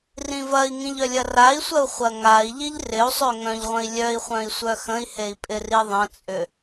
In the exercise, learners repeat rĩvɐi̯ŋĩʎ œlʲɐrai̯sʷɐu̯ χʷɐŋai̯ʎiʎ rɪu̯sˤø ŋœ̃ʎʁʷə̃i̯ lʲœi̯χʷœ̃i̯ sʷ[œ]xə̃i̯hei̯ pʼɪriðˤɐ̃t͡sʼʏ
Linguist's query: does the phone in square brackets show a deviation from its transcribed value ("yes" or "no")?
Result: no